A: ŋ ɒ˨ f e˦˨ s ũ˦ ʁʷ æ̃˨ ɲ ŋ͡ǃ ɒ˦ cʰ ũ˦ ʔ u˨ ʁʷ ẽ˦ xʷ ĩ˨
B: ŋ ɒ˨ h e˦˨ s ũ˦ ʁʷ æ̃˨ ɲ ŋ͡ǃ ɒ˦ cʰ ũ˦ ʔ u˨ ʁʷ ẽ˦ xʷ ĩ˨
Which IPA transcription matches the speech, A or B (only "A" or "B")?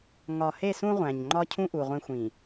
B